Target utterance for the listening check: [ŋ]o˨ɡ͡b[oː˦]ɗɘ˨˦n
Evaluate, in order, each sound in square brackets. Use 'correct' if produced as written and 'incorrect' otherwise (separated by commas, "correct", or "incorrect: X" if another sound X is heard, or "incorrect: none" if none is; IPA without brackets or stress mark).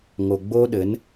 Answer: correct, incorrect: o˦